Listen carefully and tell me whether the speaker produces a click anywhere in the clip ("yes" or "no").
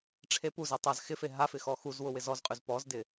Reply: no